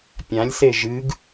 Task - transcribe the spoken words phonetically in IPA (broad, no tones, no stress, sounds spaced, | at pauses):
pʲ ã lʲ s e ʒ ɨ ɡ